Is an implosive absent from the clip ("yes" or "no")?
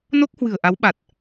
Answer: no